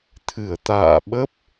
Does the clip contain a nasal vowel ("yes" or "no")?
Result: no